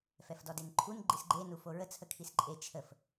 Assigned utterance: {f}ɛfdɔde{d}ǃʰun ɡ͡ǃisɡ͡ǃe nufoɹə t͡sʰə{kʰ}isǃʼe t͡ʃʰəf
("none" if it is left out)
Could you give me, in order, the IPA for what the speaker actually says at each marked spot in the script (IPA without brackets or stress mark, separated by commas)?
f, n, kʰ